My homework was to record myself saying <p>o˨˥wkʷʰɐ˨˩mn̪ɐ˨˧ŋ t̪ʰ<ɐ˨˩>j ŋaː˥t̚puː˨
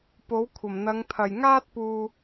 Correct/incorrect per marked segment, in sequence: correct, correct

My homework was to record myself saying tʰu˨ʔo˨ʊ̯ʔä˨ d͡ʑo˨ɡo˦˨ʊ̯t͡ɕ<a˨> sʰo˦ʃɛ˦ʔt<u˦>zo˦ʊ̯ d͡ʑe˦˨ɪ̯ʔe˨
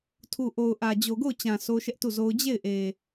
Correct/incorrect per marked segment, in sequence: incorrect: ã˨, incorrect: u˦˨

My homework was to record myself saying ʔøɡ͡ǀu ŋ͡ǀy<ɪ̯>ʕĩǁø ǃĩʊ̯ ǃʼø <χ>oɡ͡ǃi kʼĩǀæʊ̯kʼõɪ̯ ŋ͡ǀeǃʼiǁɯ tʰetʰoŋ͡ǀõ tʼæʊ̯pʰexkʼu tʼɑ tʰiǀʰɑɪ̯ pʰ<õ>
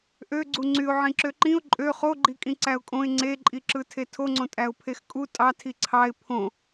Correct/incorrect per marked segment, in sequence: incorrect: ʊ̯, correct, correct

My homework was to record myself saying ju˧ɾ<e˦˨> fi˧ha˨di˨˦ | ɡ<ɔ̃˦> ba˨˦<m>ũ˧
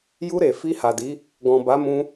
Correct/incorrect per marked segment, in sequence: incorrect: e˨, incorrect: ɔ̃˨, correct

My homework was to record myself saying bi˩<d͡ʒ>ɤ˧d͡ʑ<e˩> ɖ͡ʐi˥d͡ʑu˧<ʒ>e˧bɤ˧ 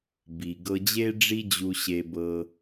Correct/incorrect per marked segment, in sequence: incorrect: ɡ, incorrect: e˥, incorrect: ɕ

